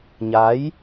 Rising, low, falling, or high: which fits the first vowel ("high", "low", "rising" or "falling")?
rising